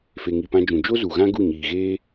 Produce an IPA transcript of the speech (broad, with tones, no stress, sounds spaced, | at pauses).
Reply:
f e˨ ŋ i˨ p ã˧ d͡ʒ ũ˨ d͡ʒ o˦ z u˨ ɣ ã˦ ɡ u˦˨ ɲ iː˨ ɣ eː˦